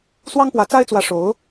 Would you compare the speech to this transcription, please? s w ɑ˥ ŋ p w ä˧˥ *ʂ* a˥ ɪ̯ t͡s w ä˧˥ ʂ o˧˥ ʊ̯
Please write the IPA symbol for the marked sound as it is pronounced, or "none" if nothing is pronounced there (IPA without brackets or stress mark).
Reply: t͡s